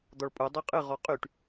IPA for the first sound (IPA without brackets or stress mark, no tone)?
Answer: d̪